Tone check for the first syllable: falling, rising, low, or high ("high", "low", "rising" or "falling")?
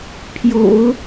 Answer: low